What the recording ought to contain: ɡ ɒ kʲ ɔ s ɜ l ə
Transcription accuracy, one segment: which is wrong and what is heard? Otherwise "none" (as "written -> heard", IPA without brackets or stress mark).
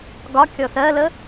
none